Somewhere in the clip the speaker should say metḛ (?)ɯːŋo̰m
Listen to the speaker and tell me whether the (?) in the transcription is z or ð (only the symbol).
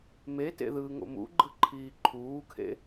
ð